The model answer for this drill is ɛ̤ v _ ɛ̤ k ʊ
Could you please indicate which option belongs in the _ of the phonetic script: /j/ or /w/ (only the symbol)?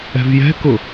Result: j